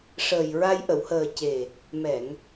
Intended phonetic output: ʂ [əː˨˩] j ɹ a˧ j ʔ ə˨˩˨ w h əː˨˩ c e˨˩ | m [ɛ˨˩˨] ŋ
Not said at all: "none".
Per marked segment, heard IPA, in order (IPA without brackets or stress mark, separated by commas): əː˨˩, ɛ˨˩˨